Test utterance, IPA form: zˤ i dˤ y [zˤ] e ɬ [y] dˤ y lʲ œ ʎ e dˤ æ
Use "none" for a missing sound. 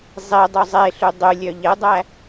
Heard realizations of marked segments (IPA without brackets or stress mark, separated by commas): zˤ, y